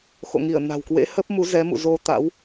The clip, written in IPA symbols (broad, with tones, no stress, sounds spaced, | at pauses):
x o̰˧˨ ŋ i˧˩ ə̯ n a̤˨˩ w k w ḛ˧˥ h ə˦˥ p̚ m u˨˦ z ɛ˨˦ m ṵ˧˨ z o˧ t̪ a̰˧˥ w